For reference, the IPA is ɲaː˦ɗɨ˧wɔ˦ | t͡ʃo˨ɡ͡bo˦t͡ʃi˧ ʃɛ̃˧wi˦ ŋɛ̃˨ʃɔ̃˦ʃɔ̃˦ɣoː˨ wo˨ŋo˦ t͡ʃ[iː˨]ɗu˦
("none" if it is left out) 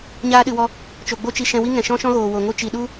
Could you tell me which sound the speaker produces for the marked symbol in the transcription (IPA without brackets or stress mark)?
i˨